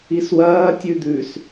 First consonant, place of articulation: alveolar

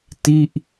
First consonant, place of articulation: alveolar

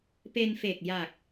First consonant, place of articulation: labial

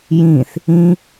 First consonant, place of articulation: palatal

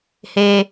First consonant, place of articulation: glottal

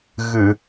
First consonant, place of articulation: velar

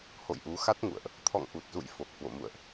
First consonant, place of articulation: glottal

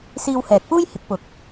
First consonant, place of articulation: alveolar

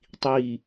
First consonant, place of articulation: alveolar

